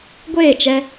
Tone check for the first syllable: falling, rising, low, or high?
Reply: falling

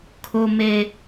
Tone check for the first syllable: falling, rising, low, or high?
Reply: high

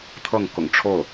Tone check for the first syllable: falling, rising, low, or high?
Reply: falling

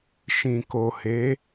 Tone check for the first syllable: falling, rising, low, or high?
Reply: low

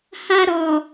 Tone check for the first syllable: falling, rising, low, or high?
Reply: high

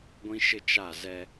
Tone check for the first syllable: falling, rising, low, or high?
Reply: high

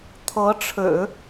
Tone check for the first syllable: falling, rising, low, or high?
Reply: rising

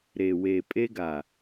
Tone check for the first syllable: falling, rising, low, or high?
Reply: low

